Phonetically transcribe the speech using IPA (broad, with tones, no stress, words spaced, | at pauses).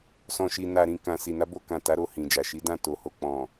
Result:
sɔ̃˨ʃi˨ na˨ɾĩ˨ kã˨ si˨na˨˦bo˧kã˨ ta˨˦ɾo˦˨hĩ˨ d͡ʒa˨ ʃi˨˦dã˦˨ to˨ho˨k͡pɔ̃˨